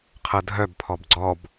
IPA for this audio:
qʰ ɤ dʱ œ b pʰ ɔ b ɡ͡ǀ ɔ b

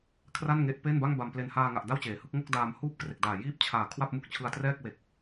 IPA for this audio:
kʰ r a˥˩ n ŋ e˦˥ ʔ p e˥˩ n b a˥˩ ŋ b a˨˩ m p l e˨˩ n h aː˧ ŋ a˨˩ ʔ d a˥˩ w t͡ɕ eː˩˦ h ɯ˥˩ k̚ ŋ o˥˩ k̚ d aː˧ m h uː˥˩ p̚ k r e˨˩ k̚ d aː˨˩ j iː˥˩ p̚ t͡ɕʰ aː˨˩ kʰ w a˥˩ p̚ m u˥˩ k̚ t͡ɕʰ ɯ˧ a̯ t r ɛː˥˩ k̚ w e˨˩ k̚

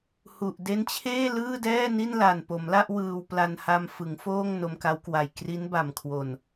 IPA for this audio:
h u˨˩ ʔ d e˦˥ n t͡ɕʰ eː˥˩ l ɯː˥˩ d ɛː˥˩ n i˥˩ n l a˨˩ n p o˩˦ m l a˥˩ ʔ w ɯː˧ w p l a˧ n h a˧ m f ɯ˩˦ ŋ f oː˥˩ ŋ n o˧ m k a˦˥ w k w a˨˩ j k r i˦˥ n b a˨˩ m kʰ w o˨˩ n

